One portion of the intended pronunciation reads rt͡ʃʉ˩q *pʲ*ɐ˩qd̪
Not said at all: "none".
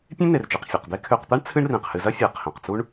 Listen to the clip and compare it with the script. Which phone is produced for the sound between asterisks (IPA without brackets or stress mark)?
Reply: fʲ